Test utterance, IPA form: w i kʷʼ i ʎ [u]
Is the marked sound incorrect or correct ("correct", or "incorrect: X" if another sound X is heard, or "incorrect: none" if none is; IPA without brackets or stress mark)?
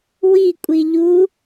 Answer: correct